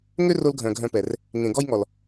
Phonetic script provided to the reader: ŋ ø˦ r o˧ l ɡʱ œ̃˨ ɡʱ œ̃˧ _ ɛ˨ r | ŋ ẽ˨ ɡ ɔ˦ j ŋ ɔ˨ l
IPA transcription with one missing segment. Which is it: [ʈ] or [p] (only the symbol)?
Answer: p